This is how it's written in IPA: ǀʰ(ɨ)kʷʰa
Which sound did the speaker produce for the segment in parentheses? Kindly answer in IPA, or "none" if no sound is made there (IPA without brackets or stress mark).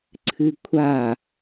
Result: ɨ